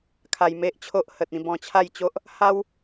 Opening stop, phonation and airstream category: aspirated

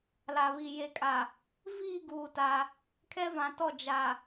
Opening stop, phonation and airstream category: ejective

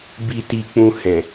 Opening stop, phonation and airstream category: plain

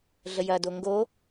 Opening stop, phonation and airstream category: plain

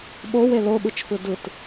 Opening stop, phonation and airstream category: implosive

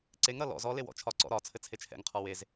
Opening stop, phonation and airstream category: click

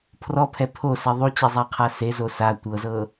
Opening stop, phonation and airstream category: aspirated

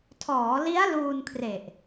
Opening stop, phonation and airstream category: aspirated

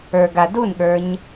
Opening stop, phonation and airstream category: plain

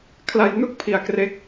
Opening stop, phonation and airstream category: aspirated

